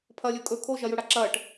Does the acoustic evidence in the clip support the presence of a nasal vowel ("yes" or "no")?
no